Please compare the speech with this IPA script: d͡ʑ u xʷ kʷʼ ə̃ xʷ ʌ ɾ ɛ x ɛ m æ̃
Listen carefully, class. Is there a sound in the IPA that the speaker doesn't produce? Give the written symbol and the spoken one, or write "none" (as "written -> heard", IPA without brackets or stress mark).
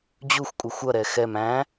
ə̃ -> ə